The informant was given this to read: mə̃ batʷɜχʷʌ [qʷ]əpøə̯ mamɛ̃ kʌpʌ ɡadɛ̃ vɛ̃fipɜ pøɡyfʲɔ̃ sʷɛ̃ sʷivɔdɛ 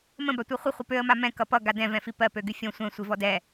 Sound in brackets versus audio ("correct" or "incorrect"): incorrect